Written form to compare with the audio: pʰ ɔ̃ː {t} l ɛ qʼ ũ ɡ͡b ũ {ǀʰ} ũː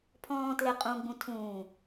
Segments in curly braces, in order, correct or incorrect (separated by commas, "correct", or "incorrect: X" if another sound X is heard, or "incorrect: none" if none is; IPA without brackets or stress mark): correct, incorrect: tʰ